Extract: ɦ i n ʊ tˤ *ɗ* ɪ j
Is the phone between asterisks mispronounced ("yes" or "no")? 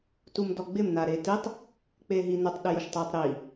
no